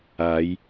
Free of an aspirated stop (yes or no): yes